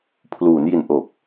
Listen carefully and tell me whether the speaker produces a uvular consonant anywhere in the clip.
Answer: no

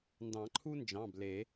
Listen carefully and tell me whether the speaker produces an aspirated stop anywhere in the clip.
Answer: yes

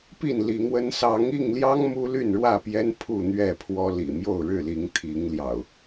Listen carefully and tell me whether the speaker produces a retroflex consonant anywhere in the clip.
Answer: yes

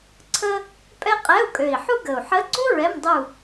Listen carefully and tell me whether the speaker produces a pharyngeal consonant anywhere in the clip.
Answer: yes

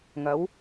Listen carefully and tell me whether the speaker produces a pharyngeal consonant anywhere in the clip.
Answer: no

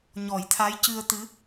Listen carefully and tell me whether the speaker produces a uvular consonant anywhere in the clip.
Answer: no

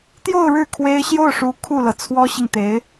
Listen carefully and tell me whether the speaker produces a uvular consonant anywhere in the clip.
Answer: no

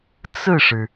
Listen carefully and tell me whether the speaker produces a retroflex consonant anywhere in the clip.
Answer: yes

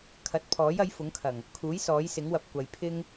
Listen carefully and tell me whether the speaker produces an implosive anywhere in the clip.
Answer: no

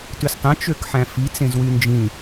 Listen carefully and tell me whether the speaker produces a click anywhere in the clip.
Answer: no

